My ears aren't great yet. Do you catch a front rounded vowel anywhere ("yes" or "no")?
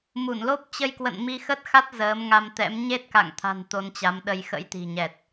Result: no